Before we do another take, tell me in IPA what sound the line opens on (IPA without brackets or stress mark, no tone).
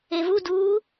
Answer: e